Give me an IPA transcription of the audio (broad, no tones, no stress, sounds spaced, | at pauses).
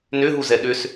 n ʏ ɦ u z ɛ ɗ ʏ s